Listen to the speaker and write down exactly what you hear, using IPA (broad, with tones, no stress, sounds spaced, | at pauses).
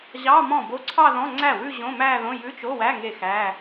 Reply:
ʑ ɑ˧˥˧ m ɔ̃˥˩ b o˧˥˧ ǀʰ ɑ˥˧ ð ɔ̃˧˥˧ ŋ͡ǀ æ˥˩ w ʉ˥˧ ʑ õ˧˥˧ m æ˥˧ ð õ˧˥˧ j ʉ˧˥˧ t͡ʃ o˧˥˧ w æ˧˥˧ ŋ e˥˩ x æ˧˥˧